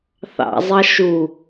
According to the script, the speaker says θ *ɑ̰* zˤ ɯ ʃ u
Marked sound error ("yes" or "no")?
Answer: no